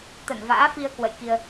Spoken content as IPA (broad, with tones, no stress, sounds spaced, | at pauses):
t̪ ə˧˩ n v a̰ː˧˥ f i˧ ə̯ k w ə̰˧˨ j k i˧ ə̯